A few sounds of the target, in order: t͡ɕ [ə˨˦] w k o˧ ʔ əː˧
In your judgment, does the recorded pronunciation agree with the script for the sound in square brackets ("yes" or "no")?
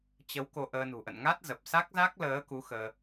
yes